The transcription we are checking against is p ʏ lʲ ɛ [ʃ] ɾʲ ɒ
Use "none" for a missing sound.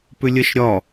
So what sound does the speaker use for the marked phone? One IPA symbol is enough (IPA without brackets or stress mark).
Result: ʃ